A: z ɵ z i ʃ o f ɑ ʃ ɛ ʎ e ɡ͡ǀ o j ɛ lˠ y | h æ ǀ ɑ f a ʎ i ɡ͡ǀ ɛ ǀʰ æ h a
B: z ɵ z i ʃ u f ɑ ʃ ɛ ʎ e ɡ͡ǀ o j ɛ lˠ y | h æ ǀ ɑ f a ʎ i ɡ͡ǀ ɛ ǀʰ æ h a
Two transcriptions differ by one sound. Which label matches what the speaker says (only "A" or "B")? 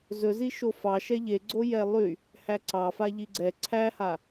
A